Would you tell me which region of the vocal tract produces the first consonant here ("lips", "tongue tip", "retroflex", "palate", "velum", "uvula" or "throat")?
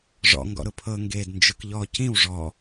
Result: retroflex